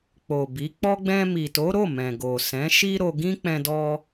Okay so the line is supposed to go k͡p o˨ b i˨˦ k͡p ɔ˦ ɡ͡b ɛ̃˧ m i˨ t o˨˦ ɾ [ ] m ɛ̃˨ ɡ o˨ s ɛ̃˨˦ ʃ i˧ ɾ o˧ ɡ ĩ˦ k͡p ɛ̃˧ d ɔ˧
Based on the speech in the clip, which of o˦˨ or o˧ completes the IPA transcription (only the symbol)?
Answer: o˦˨